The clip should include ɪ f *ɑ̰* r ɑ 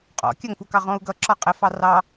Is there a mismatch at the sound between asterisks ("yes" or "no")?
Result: yes